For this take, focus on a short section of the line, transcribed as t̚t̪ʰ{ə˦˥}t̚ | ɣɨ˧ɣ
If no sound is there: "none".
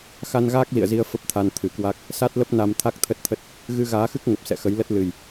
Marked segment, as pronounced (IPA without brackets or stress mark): ə˦˥